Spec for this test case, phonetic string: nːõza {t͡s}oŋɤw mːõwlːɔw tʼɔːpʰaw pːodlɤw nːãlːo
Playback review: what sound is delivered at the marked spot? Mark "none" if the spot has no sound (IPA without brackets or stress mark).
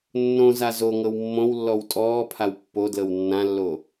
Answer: z